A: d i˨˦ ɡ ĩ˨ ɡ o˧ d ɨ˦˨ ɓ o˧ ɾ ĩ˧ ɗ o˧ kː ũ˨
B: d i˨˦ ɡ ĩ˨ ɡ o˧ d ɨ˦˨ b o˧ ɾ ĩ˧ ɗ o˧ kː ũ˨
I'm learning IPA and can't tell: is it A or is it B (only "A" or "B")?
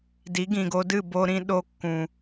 B